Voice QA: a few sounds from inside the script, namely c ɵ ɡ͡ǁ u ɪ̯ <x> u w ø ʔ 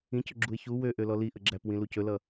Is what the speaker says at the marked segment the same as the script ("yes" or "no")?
no